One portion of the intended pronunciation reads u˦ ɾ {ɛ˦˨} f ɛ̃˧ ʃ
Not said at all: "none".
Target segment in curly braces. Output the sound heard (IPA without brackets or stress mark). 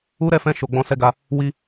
ɛ˦˨